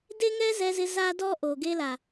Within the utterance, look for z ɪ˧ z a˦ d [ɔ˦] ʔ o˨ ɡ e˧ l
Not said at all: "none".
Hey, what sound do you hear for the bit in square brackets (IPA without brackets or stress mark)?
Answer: ɔ˦